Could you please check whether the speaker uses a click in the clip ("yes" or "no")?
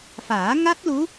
no